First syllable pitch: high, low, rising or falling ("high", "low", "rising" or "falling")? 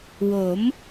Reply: rising